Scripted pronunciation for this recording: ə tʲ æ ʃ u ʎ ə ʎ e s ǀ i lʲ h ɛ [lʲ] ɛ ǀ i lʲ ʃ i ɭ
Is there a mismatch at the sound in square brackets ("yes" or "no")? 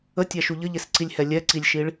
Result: no